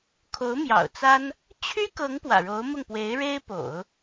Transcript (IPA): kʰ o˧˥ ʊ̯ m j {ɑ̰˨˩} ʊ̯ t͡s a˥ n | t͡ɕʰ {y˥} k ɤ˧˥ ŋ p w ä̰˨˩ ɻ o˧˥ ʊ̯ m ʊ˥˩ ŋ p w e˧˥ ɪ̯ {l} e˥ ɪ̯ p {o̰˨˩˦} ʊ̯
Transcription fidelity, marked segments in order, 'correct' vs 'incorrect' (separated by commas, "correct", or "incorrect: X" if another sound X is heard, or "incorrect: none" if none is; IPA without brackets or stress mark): correct, correct, incorrect: ɻ, correct